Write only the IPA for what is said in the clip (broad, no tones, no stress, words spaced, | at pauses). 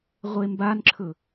ʁʷembanǁʰɵ